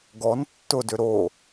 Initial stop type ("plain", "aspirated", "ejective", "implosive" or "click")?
plain